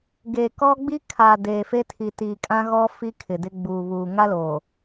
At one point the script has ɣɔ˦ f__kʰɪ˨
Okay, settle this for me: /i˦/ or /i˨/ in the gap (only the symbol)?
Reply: i˦